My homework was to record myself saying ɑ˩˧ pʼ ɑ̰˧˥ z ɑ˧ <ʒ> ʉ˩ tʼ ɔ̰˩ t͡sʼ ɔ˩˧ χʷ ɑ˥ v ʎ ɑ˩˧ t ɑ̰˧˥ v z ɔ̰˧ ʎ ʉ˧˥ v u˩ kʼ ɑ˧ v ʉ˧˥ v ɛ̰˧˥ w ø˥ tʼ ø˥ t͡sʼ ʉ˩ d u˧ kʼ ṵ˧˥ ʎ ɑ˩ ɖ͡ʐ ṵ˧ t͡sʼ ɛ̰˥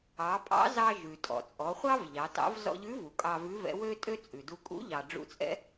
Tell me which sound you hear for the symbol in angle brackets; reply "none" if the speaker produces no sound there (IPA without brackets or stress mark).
ʒ